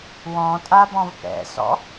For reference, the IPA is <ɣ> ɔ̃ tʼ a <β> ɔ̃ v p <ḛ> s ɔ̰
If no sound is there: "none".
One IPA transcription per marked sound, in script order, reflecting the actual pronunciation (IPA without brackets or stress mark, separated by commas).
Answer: w, b, ɛ̰